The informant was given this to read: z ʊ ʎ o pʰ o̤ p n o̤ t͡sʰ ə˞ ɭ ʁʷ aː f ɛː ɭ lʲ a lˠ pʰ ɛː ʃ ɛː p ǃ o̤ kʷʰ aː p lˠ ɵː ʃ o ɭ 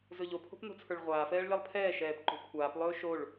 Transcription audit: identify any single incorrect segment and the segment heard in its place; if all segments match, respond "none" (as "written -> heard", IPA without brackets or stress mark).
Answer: ʊ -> ɵ